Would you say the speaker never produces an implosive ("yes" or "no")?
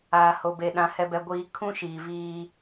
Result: no